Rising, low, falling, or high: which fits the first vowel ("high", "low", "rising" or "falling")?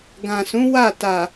low